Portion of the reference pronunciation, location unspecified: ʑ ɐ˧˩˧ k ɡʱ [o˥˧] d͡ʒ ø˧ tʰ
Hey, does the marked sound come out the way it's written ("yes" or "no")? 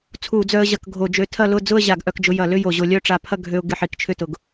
no